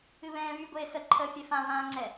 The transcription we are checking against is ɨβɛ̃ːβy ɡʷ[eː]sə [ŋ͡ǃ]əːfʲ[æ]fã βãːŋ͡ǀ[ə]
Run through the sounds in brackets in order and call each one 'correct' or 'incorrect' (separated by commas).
correct, incorrect, incorrect, incorrect